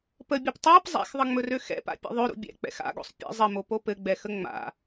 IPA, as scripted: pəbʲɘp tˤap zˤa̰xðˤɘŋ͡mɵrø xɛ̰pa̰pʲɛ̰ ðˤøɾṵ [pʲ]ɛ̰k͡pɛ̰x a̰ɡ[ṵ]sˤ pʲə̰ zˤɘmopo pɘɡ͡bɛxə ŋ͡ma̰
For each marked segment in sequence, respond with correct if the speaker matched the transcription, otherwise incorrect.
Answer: incorrect: bʲ, incorrect: o̰

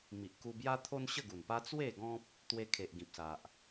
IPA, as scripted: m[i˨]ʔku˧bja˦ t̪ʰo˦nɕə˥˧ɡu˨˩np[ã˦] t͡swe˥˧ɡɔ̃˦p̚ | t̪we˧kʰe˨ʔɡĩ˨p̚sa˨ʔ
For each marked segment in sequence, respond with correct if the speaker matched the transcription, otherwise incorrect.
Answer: correct, incorrect: a˦

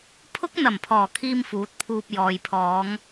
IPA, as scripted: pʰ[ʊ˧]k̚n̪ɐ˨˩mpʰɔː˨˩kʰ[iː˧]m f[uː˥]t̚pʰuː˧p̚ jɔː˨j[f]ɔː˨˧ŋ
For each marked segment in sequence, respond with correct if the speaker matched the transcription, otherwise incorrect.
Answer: incorrect: ʊ˥, correct, incorrect: uː˨˥, incorrect: pʰ

